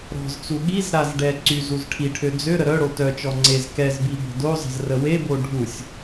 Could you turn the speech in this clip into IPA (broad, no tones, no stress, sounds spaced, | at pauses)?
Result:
ɾ ɔ̤ z t͡s u ɠ i z ɾ a z ɖ ɛ ǀ y z u z ʈʰ i ʈʰ ø d͡z ø ɾ ə ɾ œ ɽ o t œ t͡ʃ ɔ ŋ͡ǀ e z k ɛ z b i b ə̤ d o zˤ ə̤ z r ə w e b o ɖʱ u sʲ